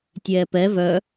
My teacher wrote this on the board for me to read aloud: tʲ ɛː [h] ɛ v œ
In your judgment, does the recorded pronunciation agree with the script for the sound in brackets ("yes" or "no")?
no